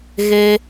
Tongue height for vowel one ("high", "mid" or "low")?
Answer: mid